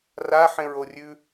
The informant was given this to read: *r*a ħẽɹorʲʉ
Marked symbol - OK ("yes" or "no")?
yes